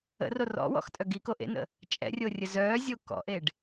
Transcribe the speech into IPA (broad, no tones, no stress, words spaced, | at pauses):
ə̰ro rɔ̰wɔ̰xtʼœ ɡiko ʔḛnə̰ | t͡ʃʼɛ̰rʲorʲə zœːzʲo kɔ̰ʔeɖ